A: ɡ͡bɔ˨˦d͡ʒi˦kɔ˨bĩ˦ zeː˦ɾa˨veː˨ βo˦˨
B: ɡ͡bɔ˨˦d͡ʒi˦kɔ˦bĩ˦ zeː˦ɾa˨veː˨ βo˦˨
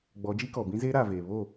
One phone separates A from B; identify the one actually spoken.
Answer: A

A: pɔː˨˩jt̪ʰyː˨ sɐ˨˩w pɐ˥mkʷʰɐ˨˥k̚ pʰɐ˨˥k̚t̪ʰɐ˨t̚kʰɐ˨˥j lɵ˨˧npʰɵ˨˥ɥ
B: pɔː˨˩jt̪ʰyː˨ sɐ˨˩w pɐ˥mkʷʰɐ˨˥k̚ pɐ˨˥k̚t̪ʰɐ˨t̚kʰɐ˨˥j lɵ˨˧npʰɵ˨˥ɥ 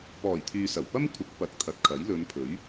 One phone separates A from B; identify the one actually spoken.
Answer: B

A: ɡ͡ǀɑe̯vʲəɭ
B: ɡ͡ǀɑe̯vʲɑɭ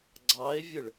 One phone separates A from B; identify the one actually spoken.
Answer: A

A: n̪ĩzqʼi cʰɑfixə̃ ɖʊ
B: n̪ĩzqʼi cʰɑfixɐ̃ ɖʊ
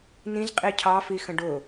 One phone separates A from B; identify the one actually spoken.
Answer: A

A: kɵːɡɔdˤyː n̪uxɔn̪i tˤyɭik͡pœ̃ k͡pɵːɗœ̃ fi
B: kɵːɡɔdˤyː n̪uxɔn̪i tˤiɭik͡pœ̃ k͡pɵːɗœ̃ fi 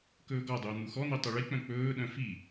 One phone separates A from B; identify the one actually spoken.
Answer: A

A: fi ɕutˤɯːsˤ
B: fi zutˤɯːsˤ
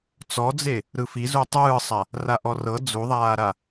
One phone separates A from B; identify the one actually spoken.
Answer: B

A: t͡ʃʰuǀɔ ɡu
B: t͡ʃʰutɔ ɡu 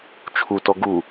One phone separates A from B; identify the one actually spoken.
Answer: B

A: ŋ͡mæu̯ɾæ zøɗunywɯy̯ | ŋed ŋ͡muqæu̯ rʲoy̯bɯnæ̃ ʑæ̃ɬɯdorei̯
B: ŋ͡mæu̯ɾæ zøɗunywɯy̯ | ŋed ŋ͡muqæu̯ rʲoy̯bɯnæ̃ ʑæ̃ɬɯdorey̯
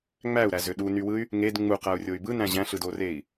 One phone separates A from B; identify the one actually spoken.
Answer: A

